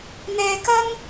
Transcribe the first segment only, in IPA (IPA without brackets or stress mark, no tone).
n̪